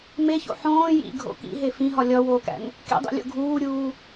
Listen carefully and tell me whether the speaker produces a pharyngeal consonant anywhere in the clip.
yes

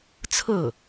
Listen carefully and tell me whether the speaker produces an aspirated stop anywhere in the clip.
yes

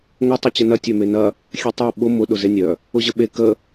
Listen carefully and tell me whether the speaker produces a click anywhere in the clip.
no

